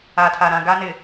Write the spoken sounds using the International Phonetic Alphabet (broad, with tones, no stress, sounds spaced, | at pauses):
a˨ tʰ a˨ ɾ ã˨ ɡ a˦ n ɪ˨